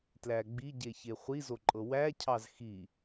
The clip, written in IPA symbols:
tlæɡ͡biɟe çeχʷizoǃʼɤ wæcʰɑz xi

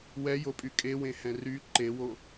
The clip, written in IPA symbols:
wɛjopʼy kʼewẽhɛ̃ ry ǃewo

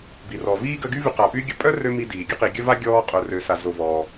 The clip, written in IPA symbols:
bi˩rɔ˩ viː˥ɡə˦ɡy˥ vy˨qa˩py˦ ɡʲə˦ pʼœ˥ rø˥mi˦diː˩ ɡʲə˥qi˨ɡʲœ˥ va˥ɡʲɔː˦ qʼœ˨rø˨ sa˨zo˨vɔː˩

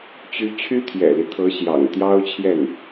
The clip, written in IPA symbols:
t͡ɕy˧˥ t͡ɕʰy˥t̪ʰjɛ̰˨˩li˦ t̪ʰɤ˧˥ ɕjɑ̰˨˩ŋ t̪jɑ˥ʊ̯t͡ɕʰjɛ˥˩n

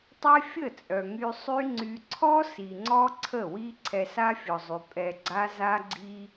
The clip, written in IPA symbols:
tˤɛ˦fʲə˦˨t͡sʼœ˨ ŋy˧sˤy˦ ŋ͡ǀy˧ ǀʰɔ˦ si˨ŋ͡ǀɔ˦ ǀʰə˦˨wi˦ ǀʰɛ˧sa˦fʲɔ˨zˤy˨ pʼɛ˨ ɡ͡ǀa˧za˧ɡ͡ǀi˧

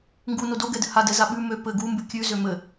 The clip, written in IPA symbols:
ŋɡuno doɡɛdɘ hadɛza ɓʉ mø pɘ ɡumbʉ kʲʉzø mɘ

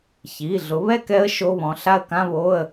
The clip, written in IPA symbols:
çi˩˧˩ ɮʊ˩˥βɛ˥˨kɛ˧˥ə̯ ʃo˧˥˧βɔ̃˩˧˩ ɬa˥˨ə̯kã˧˥˧βo˧˥˧ə̯

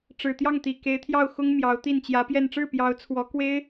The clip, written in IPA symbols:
ʈ͡ʂɻ̩˨˩t̪jɑ˥˩ŋt̪i˨˩ ke˧˥ɪ̯t̪ʰjɑ˥˩ʊ̯xʊ˥ŋ mjɑ˧˥ʊ̯t̪i˥˩n t͡ɕjä˧˥pjɛ˥˧n ʈ͡ʂɻ̩˥˩pjɑ˧˥ʊ̯t͡sʰwɔ˧˥kwe˥ɪ̯

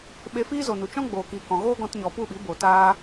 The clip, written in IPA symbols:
ɓe˧fiː˦zo˨nu˨ t͡ʃɔ̃˦ ɡ͡boː˨kiː˨ kɔ̃˨ ɣoː˦ɡɔ̃˧tɲɔ˨ pu˦˨ɓi˨˦ bo˨taː˦

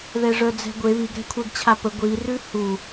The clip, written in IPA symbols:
ðɛʐœd͡zɛ̤ɡʷe βiɡ ɾɛ̤kʷʰɛɡt͡ɕʰapə ɡʷi rʉhu

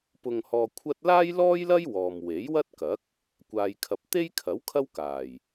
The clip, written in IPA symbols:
pʊ˧ŋhɔː˧kʷʰɐ˥t̚ laː˥jlɔː˥jlɐ˥j wɔː˨m we˨˥jwɐ˥t̚kɐ˨˥k̚ | kʷaː˨jkʰɐ˨p̚ t̪e˥jkʰɐ˨˥w kʰɐ˥wkaː˨˩j

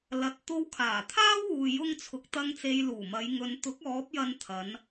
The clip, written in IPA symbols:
lɐ˨t̚ t̪o˧wkʰaː˨˩t̪ʰaː˥wuː˨ jʊ˧ŋ t͡sʰʊ˨k̚t̪ɐ˧ŋ t͡se˨j luː˨˩mɐ˨˧j ŋɵ˨nt̪ʊ˨˥k̚ ɔː˨˥p̚jɐ˧n t̪ʰɐ˨˧n

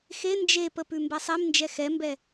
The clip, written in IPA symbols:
xe nd͡ʒepə pʉmbɛsˤemnd͡ʒɛ xɛmbɛ

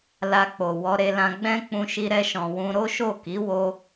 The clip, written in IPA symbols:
la˧k͡po˨ wɔ˧ɾe˧lã˧ ɡ͡bɛ̃˦ k͡pũ˧ʃi˧ ɾɛ˧ʃɔ̃˨ wũ˧ ɾo˦ʃo˦˨ki˨˦ wo˧

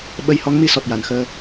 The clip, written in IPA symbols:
ɓə˧jhɔ˧˥ŋmi˧ sɔ˨˩t̚ja˨˩˨nxəː˧

